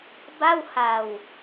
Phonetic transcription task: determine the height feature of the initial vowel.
low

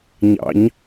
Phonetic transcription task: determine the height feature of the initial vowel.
low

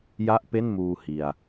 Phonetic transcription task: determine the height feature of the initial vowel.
low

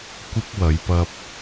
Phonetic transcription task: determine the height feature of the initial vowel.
high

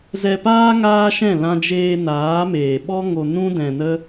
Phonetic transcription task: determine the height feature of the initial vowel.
mid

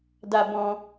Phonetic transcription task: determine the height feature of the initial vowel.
low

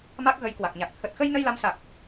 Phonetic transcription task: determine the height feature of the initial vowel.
low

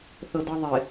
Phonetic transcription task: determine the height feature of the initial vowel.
mid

